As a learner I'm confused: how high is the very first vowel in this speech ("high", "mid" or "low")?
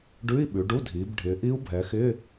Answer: high